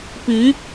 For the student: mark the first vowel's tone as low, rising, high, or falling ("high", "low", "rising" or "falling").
rising